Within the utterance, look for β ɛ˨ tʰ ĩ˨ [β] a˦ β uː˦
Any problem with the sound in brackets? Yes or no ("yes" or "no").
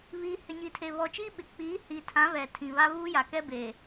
no